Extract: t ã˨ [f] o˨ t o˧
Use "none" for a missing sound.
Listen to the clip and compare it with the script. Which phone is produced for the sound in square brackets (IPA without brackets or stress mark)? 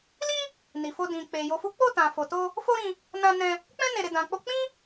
f